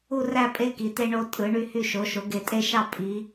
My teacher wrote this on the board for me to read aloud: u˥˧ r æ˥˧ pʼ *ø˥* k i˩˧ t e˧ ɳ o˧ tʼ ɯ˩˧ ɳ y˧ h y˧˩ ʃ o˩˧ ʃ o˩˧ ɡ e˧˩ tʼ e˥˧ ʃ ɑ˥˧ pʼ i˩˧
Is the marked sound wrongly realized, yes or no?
yes